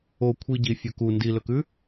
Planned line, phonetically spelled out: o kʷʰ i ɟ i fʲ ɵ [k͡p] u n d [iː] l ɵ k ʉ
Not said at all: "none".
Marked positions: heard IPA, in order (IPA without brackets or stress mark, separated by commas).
k, i